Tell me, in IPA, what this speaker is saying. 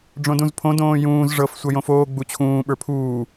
ɖ͡ʐ õ d ũ z pʰ õ d õː j ũː z ʐ ɤ f sʷ ɤ j õ f oː ɡ͡b u t͡ɕʰ ũː ɓ ə˞ pʰ uː

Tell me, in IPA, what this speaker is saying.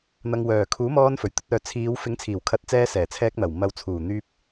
n̪ ɐ˨ ŋ w œː˨˩ kʰ uː˨˥ m ɔː˧ n f ɵ˨˩ ɥ t̪ ɵ˧ t̚ œː˨ t͡sʰ iː˨˧ w f ɪ˨˥ ŋ t͡sʰ iː˨˩ w kʰ ɐ˨˥ t̚ t͡s ɛː˧ s ɛː˨˩ t͡sʰ ɛː˧ k̚ n̪ ɐ˨˩ w m ɐ˨ w t͡sʰ uː˨˩ n̪ yː˧ p̚

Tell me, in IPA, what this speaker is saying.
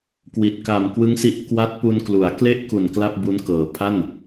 k w i˨˩ t̚ k a˨˩ m k w ɯ˦˥ ŋ s i˦˥ ʔ k w a˦˥ t̚ p u˧ n k l u˩˦ a̯ k l e˥˩ ʔ k u˨˩ n k l a˥˩ p̚ b u˦˥ n k ɤː˨˩ pʰ a˥˩ n

